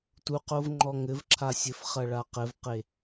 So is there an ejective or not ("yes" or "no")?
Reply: no